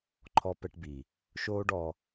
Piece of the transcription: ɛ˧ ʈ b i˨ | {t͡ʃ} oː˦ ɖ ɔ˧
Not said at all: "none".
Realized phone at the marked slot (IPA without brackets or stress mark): ʃ